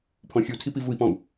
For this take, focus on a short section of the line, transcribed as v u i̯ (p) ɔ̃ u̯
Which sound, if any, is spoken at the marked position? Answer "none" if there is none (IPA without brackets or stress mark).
p